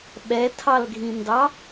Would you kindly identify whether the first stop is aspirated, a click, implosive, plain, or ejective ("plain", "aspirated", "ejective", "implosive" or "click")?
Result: implosive